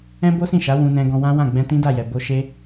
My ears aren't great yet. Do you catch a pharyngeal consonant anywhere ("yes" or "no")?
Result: no